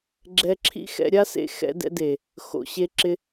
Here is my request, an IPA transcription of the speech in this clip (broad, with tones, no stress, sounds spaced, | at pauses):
ɡ͡ǁ ɛ˧ ǁʰ ḭ˦ x ɛ̰˧ ɾʲ a˦ s ḛ˧ x ɛ̰˧ d ɛ̰˧ d e˨ | x o̰˨ ɕ e˧ ǁ ɪ˧